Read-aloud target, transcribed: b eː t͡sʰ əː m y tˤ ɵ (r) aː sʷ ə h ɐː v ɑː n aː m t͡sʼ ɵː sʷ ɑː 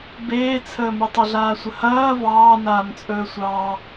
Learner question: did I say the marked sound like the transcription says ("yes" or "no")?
no